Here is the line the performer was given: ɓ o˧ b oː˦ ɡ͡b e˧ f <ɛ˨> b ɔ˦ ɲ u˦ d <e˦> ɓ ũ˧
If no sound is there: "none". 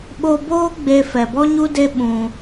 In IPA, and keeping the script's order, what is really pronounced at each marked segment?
ɛ˨, e˦

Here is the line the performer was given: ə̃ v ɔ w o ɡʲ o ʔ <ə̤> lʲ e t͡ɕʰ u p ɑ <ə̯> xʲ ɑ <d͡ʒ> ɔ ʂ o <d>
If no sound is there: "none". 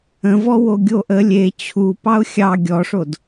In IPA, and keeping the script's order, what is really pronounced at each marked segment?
ə, ʊ̯, ɡʲ, d

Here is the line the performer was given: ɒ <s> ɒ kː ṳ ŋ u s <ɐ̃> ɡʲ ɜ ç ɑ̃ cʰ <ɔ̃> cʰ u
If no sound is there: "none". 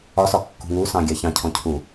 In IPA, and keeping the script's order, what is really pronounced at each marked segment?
s, ɑ̃, ɔ̃

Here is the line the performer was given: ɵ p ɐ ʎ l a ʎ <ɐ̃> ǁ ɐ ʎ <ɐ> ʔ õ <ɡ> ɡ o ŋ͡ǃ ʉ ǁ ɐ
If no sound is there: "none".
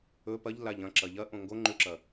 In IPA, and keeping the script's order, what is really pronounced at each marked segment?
ɐ̃, ɐ, ŋ

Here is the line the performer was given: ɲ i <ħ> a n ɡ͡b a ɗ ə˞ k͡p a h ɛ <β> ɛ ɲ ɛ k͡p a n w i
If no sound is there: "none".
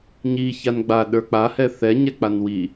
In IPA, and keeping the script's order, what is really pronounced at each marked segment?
ç, θ

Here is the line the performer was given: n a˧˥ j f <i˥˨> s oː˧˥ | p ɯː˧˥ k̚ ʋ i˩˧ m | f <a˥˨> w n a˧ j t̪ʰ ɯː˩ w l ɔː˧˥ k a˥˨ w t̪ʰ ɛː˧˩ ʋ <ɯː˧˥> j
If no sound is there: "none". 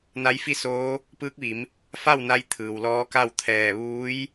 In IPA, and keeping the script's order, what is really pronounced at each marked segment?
i˥˨, a˥˨, uː˧˥

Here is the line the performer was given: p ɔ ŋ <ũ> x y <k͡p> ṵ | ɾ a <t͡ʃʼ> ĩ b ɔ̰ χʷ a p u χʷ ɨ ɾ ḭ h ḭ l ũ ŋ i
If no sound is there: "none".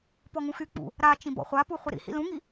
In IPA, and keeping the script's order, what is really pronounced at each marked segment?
ũ, k͡p, t͡ʃ

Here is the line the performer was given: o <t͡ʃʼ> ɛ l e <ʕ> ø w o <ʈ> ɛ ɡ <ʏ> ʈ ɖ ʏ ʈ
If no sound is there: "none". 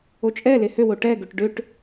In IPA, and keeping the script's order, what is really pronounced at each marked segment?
t͡ʃʼ, h, ʈ, ʏ

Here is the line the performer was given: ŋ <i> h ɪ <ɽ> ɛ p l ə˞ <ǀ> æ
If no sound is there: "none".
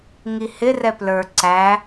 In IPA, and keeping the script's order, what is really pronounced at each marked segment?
i, r, ǀ

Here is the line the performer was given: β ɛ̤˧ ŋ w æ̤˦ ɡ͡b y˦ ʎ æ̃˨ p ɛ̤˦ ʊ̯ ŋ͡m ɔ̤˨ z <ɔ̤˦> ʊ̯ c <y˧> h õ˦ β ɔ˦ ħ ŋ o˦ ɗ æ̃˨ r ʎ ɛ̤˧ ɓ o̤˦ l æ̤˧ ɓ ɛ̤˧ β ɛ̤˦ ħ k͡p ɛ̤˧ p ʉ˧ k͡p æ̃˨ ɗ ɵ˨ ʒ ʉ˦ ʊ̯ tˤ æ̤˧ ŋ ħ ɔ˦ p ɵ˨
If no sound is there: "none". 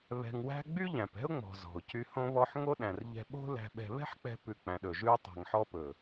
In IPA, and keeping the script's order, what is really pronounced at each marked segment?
ɔ̤˨, y˧

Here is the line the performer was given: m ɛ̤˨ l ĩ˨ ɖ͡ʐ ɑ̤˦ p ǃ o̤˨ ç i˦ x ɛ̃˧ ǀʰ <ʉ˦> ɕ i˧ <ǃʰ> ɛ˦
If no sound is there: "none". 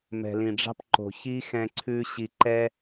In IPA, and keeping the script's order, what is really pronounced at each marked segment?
ʉ˦, ǃ

